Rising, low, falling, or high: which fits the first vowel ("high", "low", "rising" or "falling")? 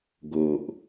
low